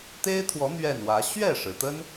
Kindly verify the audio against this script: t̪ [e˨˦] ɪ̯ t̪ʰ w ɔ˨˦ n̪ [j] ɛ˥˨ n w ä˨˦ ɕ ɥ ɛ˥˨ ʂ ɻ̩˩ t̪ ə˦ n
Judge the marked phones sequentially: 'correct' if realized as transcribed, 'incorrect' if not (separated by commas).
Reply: incorrect, incorrect